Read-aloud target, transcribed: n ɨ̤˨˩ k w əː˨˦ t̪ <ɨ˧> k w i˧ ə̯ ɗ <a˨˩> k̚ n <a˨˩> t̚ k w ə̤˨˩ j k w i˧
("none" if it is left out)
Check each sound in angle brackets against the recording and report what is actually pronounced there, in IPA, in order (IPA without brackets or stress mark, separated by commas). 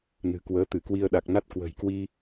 ɨ˧˩, a˨˩, a˦˥